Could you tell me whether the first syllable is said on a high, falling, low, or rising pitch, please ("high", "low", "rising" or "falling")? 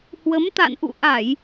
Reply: rising